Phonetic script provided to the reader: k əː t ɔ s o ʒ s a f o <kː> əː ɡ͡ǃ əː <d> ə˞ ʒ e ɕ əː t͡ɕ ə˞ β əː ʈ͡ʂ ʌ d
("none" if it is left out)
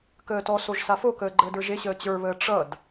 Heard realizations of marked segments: k, d

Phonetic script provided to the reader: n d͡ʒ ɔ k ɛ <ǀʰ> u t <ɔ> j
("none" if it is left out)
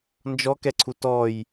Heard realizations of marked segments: ǀʰ, ɔ

